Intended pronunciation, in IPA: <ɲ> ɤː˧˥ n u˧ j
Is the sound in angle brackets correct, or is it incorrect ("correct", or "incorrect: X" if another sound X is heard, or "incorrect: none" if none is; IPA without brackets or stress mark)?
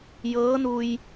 incorrect: j